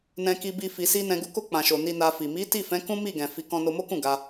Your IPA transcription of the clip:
n ɛ̃˨ k i˨ b i˨ f i˨ s i˧ n ɛ̃˨ ɡ u˨˦ k o˧ k͡p ã˨ ʃ o˨ n i˧ n a˧ f i˨ m i˨˦ t i˦˨ f ɛ̃˨˦ k ũ˦ m i˦˨ ɡ ɛ̃˨ f i˨˦ k ɔ̃˧ n o˧ m o˦ k ũ˦˨ ɡ a˧

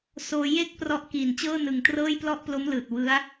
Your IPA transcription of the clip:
s oː˧ j e˥˩ k̚ p r ɔ˦˥ ʔ k iː˨˩ n t͡ɕ ɤː˥˩ n ɯ˨˩ ŋ t r ɤː˥˩ j p l ɔ˥˩ ʔ p l o˦˥ m l ɯː˨˩ t̚ w ɯ˦˥ a̯

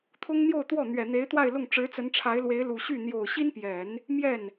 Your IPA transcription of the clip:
t̪ʰ ʊ˥ ŋ n̪ j o˥˧ ʊ̯ t̪ w ɔ˥˩ n̪ ɥ ɛ˨˩ n̪ e˧˥ ɪ̯ t̪ w a˥˧ ɪ̯ l ʊ˥˩ ŋ ʈ͡ʂ ɻ̩˧˥ t͡s ə˧˥ n ʈ͡ʂʰ a˧˥ ɪ̯ l w e˧˥ ɪ̯ l u˨˩ ɕ y˥˩ n̪ j o˨˩ ʊ̯ ɕ i˥ n p j ɛ˨˩˦ n | m j ɛ˥˩ n

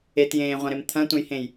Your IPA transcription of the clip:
e t j ẽː ʁʷ ɐ̃ ɾ e m t̪ʰ ɐ̃ tʷ ə̃ j h ẽ j

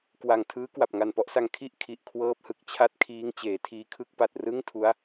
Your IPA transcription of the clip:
k w a˨˩ ŋ tʰ ɯː˦˥ k w a˨˩ p̚ ŋ a˨˩ n p ɔ˥˩ ʔ s a˧ ŋ kʰ i˥˩ ʔ kʰ i˨˩ ʔ kʰ w ɤː˦˥ p̚ h ɯ˨˩ k̚ t͡ɕʰ a˥˩ t̚ kʰ iː˦˥ ŋ t͡ɕ eː˩˦ tʰ iː˧ kʰ ɯ˥˩ k̚ p a˨˩ t̚ r ɯ˥˩ ŋ tʰ u˦˥ a̯

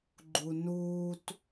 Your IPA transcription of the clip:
ɡ͡ǃ u n uː t

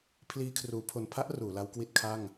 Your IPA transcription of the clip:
pʰ l iː˧ kʰ r uː˩˦ pʰ o˨˩ n pʰ a˥˩ ʔ r uː˩˦ l a˦˥ w k w i˥˩ t̚ kʰ a˥˩ ŋ

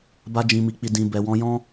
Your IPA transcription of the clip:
b a˧ d͡ʒ ĩ˨ m i˨ k͡p i˨ d ĩ˨ b ɛ˨ w ɔ̃˨˦ j ɔ̃˦

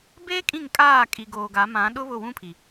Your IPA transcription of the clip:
b eː˦ kʼ ĩ˦˨ ŋ kʼ aː˦˨ kʼ i˨ ɡ oː˨ ɡ a˨˦ m ã˨˦ ɗ ʊ˦ β ʊ˦˨ w ũ˦ pʰ i˨

